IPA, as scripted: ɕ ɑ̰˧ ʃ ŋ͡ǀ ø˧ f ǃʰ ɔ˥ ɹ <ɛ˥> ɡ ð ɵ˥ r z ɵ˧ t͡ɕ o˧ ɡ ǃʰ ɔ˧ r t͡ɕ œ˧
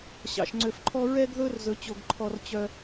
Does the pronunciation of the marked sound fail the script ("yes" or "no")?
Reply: no